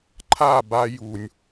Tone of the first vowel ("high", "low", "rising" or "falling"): falling